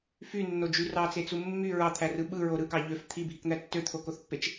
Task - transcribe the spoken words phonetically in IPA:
fynːod͡ʒy rɑt͡set͡su mːy ɹɑt̪ʰærɯ ɓɯɹo ɾɯkɑ ʎøf t̪ʰibʱikn̪æ tːøt̪ʰokoθpːet͡ʃ

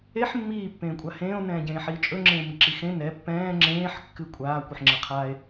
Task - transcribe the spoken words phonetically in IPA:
eħ mːiː pːẽːkʷʼahẽːo̯ nɛ̃ːɟẽːħiːt͡ʃʼɵ ŋ͡ǁẽːmiǁixẽ nɛ pːɛ̃ː ŋ͡ǁẽːħ kːɨkʷʼaː kʷɨħŋ͡ǁɛqʰaːe̯

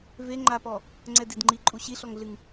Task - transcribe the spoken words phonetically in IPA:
ve ŋ͡ǃapɔ | ŋ͡ǀɛdidŋ͡ǃi ǃʼuɕiɬɔŋɮɨŋ

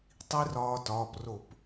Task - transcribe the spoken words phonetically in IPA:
tˤi˦˥rɒː˧tɒː˩˧˩pro˧˩˧p

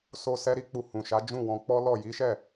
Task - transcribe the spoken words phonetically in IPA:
so˧ sɛ˧ ɾi˧k͡pu˨ hũ˨ʃa˨˦ d͡ʒũ˦˨wɔ̃˧k͡pɔ˦lɔ˦˨ ji˨˦ʃɛ˦˨

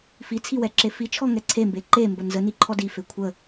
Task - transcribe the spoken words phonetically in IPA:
fit͡sʰiwɛǁe fit͡ʃʰɔŋɛ ǀʰembe ǃembə nzəniǃʰɔ dife kʷʰə

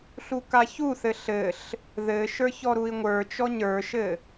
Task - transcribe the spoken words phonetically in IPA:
ɬukaçuθɘ ɬɘɬ | ðɘʃə˞ çɔɾui̯ŋʷə˞t͡ʃɔ ɲə˞ʃɘ

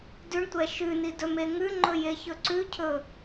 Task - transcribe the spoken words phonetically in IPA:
dʉɳtʷɛ ʃʉni dɵmeŋʉŋ͡ǃɵ jeçɵǀʉcʰɵ

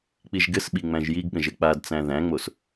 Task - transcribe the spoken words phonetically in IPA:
k͡piʒɡɘsɓi ŋ͡mæ̃ʒjiɡɠə̃ʒɘ k͡padt͡sæ̃ ðæ̃ŋ͡mos

